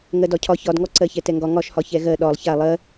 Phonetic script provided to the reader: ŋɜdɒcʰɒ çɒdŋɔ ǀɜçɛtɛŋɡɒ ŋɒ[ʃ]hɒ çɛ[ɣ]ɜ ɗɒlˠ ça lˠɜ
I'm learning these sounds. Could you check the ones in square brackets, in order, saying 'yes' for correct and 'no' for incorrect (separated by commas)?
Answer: yes, yes